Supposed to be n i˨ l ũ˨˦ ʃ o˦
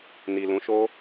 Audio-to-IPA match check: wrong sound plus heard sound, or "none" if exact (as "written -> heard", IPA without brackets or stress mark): none